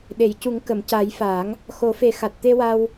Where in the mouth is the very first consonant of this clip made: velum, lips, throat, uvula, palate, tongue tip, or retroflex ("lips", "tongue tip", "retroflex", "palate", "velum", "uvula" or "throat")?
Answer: tongue tip